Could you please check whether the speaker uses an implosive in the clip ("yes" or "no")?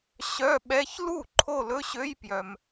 yes